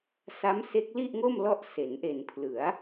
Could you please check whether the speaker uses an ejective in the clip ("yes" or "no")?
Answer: no